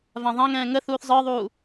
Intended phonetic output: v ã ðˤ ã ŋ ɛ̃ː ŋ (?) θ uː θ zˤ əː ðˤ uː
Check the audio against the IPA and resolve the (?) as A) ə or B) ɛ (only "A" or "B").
A